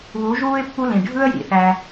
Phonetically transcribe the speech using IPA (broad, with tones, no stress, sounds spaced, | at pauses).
β u˨˦ ʒ uː˦ ɪ̯ pː u˦ l ĩ˨ ɖʱ ɯ˦ ə̯ j ḭ˨ θ æ˧